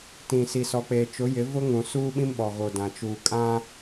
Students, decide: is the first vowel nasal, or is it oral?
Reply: nasal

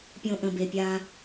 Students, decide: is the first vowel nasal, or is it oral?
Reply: nasal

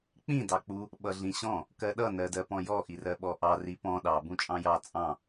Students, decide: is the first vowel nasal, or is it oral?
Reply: nasal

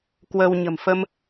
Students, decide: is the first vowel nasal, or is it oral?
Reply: oral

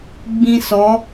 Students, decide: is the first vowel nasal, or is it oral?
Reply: nasal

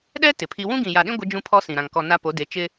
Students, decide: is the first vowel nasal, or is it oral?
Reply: oral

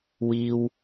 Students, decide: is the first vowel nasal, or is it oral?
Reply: oral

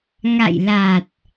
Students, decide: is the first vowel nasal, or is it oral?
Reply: oral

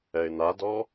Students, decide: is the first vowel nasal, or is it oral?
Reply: oral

